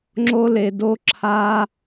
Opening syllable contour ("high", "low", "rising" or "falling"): high